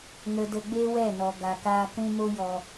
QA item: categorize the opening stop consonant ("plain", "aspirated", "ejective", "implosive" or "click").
plain